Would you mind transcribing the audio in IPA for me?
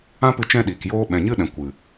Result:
ã˦pɨ˧ t͡ʃɛ̃˦ɗiː˨kjoː˦ ɓɛ̃˨ɲɨ˦ɗɛ̃˨ kʷɨ˨

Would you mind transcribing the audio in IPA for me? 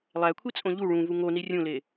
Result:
lˠækʷʰit͡sʼõ ʎu ɭũvu ŋoni rʲũle

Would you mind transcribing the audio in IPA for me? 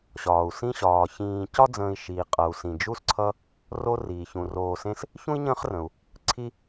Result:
ɕɒː˩u̯ sĩ˥ɕɒː˩ çĩː˨ cɒ˥d͡zə̃ː˨i̯ʃiː˩qʼʌ˩u̯ sĩ˩d͡ʒu˦s ǀʰʌ˥ | ro˦riː˩ çũ˩roː˨sẽ˦s | çũ˥i̯ɲə̃ː˦χrə̃˩u̯ | ǀʰi˦

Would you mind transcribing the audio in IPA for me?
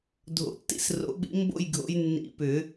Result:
dʱo̰˨˩˦tːḭ˥˧sro̰˨˩˦ɓḭ˨˦ mbo̰˥˧jɡʱo̰˨˦j nːḭ˨˩˦ pʏ˨˩˦

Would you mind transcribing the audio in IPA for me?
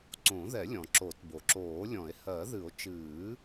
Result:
ǀõ˨˩˦ ðɛ˨˩˦lʲɔ̃˩ ǁo˨˩˦tbo˩ǁoː˨˩˦lʲɔ̃˨˩˦e̯ hɜ˨˩˦ðɨ˨˩˦o̯ t͡ʃɨː˨˩˦

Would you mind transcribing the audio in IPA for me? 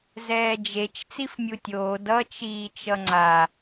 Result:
zɛːd͡ʒet͡ʃ t͡sifmʲutʲoː dʌ t͡ʃiːt͡ʃʌŋ͡ǀa

